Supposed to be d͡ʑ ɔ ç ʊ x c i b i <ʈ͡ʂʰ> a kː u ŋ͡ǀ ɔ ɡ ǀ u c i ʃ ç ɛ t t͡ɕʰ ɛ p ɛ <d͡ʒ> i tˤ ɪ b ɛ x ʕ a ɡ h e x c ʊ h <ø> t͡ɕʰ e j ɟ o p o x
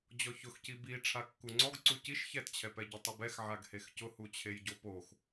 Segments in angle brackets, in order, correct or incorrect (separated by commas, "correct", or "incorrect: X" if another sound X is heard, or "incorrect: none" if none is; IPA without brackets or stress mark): correct, incorrect: ɟ, incorrect: u